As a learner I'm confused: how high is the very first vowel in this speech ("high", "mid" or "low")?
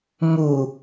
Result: high